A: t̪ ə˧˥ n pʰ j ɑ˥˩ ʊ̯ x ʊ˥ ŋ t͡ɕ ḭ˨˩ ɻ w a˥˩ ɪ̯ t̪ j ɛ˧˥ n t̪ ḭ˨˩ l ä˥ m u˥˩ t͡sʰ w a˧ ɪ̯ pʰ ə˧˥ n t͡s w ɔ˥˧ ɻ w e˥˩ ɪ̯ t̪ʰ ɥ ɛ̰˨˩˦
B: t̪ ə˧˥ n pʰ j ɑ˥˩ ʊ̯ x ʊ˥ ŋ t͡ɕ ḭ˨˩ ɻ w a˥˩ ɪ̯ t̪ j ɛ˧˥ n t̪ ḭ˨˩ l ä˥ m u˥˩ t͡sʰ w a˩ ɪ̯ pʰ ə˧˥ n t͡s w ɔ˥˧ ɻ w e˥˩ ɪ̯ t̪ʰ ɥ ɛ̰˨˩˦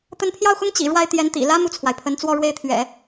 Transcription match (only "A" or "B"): B